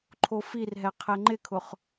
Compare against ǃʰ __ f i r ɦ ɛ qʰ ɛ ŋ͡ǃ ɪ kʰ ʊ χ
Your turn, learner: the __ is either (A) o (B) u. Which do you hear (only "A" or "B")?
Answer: A